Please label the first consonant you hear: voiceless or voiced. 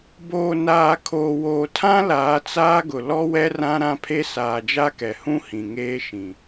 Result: voiced